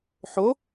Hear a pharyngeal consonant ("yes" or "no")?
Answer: yes